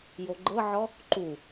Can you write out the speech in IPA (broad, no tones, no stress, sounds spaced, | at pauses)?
j o ɡ͡ǃ ɤ ʕ ɔ | ǃ u